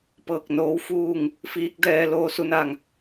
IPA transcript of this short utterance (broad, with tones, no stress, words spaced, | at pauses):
pɤː˧˩k̚noː˧˥wfuː˥˨ŋ | fiː˧˥k̚dɛː˧ loː˧su˧na˧˩ŋ